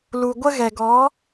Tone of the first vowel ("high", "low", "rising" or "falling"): low